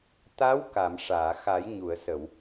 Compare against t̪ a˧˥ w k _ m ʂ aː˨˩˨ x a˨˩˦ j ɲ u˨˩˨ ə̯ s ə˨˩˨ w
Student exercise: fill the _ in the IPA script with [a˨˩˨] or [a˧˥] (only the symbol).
a˨˩˨